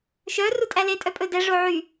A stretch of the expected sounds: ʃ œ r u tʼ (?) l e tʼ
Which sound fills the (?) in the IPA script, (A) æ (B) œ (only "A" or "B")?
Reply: A